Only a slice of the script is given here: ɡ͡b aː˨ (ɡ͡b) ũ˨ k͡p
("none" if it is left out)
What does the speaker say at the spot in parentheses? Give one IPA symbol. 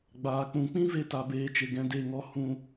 k͡p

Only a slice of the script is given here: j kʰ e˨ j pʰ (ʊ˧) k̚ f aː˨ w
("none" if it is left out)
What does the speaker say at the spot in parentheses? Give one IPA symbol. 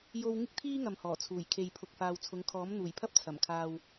ʊ˨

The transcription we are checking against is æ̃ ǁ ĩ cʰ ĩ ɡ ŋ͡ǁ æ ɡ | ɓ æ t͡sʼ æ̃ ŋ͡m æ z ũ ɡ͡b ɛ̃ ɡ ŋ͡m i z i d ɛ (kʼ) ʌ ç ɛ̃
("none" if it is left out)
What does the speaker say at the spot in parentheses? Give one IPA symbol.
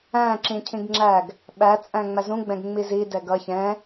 ɡ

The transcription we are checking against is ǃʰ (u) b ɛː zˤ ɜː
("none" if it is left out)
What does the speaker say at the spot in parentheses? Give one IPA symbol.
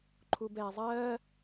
u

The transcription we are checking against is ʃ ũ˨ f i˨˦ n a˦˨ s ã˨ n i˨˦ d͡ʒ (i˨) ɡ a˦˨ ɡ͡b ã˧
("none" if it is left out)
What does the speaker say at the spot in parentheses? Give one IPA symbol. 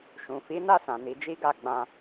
i˦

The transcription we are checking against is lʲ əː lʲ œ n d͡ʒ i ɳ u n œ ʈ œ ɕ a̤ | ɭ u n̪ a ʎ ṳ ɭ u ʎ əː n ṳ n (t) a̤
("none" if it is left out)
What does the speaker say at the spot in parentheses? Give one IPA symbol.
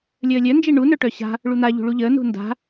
d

